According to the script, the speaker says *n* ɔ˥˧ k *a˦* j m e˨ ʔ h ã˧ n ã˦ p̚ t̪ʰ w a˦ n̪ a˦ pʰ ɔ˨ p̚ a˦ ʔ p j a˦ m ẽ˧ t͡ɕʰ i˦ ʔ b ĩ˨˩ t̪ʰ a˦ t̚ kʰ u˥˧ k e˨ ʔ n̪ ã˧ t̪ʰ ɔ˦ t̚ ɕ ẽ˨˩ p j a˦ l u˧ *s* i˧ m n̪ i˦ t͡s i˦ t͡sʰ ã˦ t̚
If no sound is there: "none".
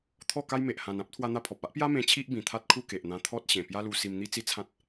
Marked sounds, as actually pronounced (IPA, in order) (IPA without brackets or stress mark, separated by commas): t̪ʰ, a˦, s